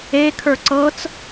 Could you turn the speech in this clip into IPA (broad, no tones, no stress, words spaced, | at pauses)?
e kʰə˞ǀɤt͡s